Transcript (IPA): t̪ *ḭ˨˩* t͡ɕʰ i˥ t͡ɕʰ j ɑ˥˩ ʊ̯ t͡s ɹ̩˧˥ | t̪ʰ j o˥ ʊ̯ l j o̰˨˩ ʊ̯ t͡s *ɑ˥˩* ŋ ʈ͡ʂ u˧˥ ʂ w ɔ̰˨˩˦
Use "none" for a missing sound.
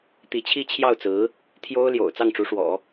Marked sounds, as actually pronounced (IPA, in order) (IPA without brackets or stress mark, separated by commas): i˧˥, ɑ˥˩